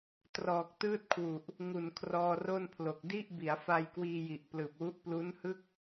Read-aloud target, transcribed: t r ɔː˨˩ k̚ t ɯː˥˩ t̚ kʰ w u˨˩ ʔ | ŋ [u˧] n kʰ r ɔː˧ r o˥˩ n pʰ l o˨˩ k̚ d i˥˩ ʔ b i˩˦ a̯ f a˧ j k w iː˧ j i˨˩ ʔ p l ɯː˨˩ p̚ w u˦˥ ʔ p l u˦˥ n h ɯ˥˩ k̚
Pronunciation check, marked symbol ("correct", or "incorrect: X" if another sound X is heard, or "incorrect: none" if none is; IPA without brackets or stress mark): incorrect: u˨˩